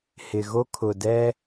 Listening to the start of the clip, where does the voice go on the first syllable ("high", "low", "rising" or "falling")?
low